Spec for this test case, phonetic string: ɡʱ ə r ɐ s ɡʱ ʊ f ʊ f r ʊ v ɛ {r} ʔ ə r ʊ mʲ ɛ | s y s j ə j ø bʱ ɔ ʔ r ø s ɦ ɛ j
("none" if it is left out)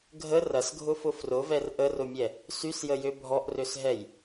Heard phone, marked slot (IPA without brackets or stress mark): r